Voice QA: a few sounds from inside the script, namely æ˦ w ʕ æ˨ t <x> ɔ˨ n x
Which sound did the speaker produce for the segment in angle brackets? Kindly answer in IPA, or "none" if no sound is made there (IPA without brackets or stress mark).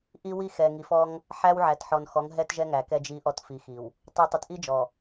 ħ